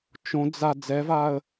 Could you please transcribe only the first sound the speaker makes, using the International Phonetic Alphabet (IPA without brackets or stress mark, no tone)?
t͡ʃ